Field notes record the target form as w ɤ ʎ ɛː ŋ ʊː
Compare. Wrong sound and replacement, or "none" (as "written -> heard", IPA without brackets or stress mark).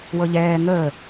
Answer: ʊː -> əː